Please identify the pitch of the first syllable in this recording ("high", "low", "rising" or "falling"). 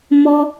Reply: high